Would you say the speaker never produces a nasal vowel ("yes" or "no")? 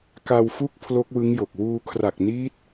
yes